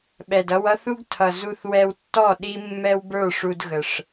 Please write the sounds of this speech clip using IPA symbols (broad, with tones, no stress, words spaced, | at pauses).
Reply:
ɓɛ˨dʌ˧wʌ˦θu˦ɡ tʰʌ˨zu˧θ wɛ˧wtːɔ˦˨ ɗi˦mːɛ˦wbə˞˦˨ʂu˧d ɣə˨ʂ